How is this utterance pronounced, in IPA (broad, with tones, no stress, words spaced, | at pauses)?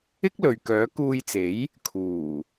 ɪ˥k̚ lɵ˨ɥkœː˨˥ kuː˧jt͡se˨˥j | kʰuː˨˩